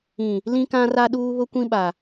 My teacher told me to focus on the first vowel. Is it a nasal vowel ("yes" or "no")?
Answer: yes